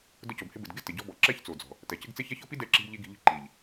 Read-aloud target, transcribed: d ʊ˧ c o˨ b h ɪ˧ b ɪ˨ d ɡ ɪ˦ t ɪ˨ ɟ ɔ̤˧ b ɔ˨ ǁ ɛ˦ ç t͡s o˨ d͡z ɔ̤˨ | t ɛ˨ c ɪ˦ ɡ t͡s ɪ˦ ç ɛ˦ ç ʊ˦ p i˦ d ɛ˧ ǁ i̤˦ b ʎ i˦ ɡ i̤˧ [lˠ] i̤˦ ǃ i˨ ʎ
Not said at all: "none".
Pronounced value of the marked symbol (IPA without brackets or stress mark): ʎ